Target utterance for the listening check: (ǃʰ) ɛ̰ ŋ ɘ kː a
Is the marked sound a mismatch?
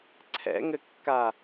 yes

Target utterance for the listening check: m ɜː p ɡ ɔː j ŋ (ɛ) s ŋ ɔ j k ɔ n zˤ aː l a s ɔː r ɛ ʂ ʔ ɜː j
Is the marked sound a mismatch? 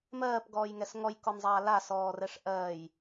no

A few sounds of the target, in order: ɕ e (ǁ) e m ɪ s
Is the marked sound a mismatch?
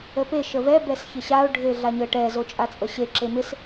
no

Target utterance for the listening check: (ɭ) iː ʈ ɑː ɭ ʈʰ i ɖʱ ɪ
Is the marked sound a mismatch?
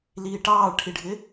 yes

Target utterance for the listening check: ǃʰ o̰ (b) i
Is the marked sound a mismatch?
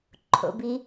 no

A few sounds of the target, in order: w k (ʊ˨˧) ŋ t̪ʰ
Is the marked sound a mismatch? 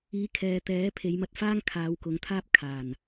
no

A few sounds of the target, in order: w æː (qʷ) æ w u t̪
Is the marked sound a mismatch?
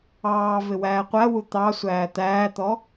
no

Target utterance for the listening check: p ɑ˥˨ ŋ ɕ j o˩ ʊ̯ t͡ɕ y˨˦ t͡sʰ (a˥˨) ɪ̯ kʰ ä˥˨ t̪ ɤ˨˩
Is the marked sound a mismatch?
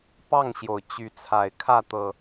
yes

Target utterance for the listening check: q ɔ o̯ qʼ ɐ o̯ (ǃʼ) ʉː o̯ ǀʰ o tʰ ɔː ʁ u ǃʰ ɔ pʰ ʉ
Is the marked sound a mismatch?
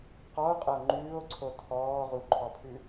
yes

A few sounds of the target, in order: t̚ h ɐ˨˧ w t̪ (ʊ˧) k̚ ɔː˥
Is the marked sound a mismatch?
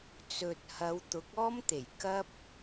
yes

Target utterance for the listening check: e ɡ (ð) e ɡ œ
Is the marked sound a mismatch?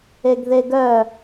no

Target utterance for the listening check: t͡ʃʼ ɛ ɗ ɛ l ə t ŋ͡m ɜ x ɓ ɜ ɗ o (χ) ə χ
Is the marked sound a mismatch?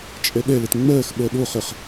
no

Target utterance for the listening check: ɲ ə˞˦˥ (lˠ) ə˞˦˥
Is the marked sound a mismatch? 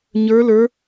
yes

